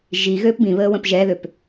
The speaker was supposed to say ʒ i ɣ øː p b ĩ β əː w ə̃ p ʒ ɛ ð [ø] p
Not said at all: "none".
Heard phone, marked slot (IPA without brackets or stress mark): ø